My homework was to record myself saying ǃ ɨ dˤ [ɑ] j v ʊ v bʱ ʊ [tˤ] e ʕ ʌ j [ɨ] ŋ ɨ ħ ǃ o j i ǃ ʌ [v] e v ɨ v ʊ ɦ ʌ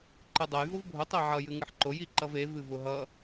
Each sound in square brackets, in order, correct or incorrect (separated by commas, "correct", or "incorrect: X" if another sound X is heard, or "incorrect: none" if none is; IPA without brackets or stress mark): incorrect: ʌ, correct, correct, correct